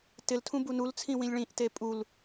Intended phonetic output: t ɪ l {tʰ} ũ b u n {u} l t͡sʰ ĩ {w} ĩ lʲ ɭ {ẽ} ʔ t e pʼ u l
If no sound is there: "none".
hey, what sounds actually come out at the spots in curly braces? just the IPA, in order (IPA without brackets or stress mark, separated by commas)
tʰ, u, w, ĩ